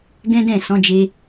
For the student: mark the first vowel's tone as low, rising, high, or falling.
high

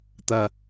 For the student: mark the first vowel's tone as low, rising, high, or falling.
low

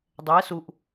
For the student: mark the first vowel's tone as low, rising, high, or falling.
rising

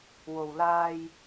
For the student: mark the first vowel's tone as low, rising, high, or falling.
low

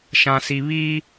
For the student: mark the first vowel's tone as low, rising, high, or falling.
low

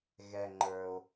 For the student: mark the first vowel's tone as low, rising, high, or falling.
low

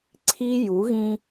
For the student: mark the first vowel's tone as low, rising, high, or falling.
high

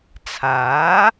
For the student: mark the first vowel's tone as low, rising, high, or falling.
rising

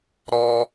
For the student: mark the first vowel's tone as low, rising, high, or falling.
high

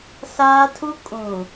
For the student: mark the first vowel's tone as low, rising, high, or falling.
high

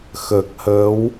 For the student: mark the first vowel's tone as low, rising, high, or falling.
low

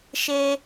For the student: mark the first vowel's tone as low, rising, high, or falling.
high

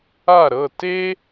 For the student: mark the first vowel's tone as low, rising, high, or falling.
falling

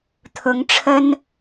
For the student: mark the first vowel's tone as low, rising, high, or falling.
rising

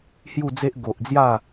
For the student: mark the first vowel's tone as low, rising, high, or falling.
falling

